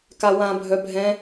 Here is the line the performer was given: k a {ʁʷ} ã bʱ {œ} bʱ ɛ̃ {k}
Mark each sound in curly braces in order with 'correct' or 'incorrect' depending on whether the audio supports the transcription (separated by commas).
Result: incorrect, correct, incorrect